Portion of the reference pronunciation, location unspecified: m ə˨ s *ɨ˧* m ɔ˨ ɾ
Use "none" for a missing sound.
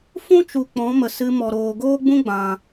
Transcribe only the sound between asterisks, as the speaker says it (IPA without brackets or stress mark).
ɨ˧